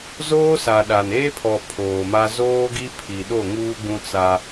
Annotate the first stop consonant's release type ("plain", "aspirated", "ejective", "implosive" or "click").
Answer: implosive